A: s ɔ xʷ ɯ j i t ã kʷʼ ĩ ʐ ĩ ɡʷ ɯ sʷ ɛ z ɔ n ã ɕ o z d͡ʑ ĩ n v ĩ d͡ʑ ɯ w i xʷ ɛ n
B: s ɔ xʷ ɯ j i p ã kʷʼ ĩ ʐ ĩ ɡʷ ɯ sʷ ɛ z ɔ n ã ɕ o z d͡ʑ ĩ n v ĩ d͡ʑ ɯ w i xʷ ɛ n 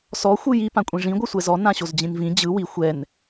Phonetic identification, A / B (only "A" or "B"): B